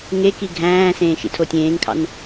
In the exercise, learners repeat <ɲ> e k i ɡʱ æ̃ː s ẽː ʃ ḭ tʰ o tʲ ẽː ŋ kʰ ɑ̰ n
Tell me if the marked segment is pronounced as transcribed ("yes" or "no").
no